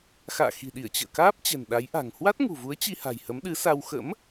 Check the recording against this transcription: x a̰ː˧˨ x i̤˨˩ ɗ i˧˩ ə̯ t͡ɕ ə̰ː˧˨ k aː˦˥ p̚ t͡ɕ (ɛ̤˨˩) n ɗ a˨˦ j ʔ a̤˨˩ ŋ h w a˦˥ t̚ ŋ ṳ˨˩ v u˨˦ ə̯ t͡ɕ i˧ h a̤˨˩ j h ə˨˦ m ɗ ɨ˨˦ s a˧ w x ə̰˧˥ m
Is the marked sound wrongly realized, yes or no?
no